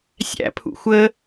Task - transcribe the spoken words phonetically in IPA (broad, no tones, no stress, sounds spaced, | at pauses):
sʲ æ̰ pʰ ṵ xʷ ə